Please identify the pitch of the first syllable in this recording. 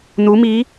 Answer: rising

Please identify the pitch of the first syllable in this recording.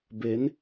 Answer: rising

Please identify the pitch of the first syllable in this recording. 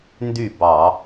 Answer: falling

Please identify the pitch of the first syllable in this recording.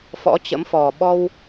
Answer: rising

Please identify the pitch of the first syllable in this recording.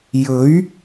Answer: rising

